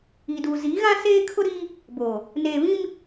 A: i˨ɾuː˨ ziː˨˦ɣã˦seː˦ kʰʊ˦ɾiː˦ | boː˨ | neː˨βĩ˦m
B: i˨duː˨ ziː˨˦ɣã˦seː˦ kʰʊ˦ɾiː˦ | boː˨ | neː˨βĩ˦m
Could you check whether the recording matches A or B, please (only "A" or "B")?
B